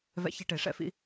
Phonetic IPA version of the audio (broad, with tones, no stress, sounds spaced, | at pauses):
v ɛ̰˧ ç e˧ ʈ e˩˧ ʂ ɛ̰˧ f ḭ˧